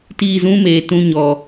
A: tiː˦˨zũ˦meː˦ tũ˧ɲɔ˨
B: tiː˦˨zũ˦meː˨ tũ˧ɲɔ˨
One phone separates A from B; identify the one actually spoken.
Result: B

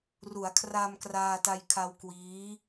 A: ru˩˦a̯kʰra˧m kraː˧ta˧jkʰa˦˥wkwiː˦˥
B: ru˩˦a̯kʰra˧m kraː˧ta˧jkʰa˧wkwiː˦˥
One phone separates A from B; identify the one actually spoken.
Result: B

